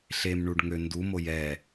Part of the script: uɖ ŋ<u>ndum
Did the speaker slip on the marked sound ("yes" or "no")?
yes